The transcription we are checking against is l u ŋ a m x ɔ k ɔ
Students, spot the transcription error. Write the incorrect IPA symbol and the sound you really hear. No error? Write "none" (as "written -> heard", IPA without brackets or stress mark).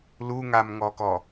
x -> ŋ